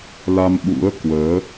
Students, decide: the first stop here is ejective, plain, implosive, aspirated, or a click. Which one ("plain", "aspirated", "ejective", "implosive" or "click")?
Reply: implosive